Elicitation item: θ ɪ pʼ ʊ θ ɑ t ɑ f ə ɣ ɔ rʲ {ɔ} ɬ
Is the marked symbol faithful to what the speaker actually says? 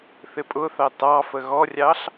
no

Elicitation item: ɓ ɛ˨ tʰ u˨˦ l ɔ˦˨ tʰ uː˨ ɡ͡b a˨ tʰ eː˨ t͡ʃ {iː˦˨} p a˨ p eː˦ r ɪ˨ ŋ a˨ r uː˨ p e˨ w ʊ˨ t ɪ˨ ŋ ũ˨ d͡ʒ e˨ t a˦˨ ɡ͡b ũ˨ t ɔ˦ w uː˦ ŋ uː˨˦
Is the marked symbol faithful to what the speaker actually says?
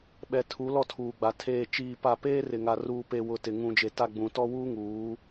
no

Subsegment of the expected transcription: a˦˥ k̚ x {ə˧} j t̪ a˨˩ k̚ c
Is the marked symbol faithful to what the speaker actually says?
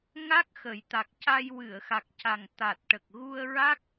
no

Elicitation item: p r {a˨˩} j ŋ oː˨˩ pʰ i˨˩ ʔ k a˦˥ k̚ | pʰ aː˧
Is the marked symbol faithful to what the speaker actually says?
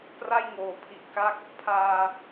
no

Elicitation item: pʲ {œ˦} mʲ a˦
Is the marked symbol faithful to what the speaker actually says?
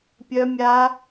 yes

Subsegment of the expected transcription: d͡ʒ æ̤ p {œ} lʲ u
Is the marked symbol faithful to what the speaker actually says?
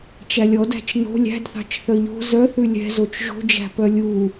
yes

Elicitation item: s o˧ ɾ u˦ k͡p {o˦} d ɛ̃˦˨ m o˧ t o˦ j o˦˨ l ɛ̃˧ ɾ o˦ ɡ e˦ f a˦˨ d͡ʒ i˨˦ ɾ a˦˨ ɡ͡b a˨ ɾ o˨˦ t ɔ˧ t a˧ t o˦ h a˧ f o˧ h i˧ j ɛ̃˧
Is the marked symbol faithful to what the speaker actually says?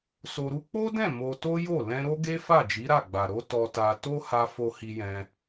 yes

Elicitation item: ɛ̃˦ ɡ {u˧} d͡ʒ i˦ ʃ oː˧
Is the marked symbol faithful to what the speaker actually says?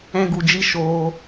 yes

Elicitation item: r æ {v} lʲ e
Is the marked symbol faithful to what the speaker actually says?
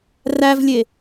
yes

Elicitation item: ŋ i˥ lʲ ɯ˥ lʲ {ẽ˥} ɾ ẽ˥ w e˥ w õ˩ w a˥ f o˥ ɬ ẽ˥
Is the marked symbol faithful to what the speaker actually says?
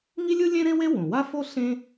yes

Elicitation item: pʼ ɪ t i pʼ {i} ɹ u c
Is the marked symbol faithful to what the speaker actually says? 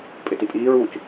no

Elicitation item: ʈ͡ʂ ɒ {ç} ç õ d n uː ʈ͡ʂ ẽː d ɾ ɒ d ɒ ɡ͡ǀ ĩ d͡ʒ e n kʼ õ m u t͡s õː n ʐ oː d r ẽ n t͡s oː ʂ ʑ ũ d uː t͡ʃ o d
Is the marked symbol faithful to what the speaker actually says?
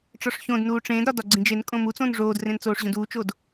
no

